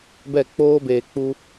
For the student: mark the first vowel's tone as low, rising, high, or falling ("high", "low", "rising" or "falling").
falling